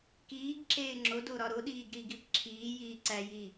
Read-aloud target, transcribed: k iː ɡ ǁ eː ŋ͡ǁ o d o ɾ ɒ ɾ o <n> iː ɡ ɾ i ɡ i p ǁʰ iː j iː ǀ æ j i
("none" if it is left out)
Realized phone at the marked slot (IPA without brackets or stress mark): ɗ